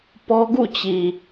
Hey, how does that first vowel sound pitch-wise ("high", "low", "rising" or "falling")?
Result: high